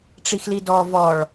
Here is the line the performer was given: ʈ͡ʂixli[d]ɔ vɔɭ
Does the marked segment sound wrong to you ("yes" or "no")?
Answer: no